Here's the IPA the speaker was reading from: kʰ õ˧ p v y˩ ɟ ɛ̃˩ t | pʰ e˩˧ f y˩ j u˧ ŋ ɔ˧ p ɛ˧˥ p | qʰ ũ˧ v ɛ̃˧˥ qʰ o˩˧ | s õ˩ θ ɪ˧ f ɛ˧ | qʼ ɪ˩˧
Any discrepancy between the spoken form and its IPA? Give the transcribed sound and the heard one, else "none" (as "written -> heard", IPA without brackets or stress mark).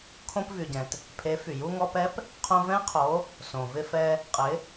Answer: θ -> v